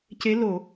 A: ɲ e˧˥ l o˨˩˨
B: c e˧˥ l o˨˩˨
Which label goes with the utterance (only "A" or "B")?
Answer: B